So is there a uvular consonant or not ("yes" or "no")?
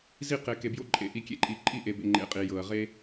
yes